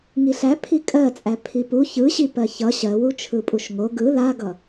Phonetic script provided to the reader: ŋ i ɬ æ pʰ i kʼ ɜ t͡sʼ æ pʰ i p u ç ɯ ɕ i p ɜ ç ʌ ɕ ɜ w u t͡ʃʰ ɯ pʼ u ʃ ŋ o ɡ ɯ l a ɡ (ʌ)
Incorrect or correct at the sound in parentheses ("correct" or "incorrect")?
correct